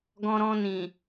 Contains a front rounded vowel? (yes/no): no